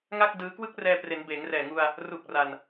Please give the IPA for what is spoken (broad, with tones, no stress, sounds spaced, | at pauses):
ŋ a˥˩ k̚ d ɯː˦˥ k w ɯ˦˥ k̚ r ɛː˧ p r e˩˦ n b eː˩˦ ŋ r ɛː˨˩ ŋ u˧ a̯ | r u˨˩ k̚ r a˧ n